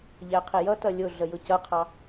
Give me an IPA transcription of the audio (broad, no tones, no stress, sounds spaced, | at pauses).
ʎ æ qʰ ɪ j ʌ t ʌ lʲ ʊ ɮ ə j ʊ c ʌ qʰ ɑ